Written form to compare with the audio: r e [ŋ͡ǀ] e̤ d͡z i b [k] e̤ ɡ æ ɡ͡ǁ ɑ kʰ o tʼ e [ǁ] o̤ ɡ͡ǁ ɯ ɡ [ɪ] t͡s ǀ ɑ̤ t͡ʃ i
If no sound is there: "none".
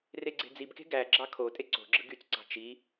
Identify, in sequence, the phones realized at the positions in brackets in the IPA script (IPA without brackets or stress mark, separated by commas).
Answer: ɡ͡ǀ, k, ǀ, y